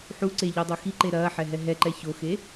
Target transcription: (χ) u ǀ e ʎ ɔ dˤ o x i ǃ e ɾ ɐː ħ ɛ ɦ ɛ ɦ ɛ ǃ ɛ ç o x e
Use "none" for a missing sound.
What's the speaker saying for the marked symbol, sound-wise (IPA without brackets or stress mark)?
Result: ħ